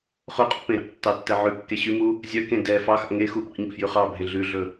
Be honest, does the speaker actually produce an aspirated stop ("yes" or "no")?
no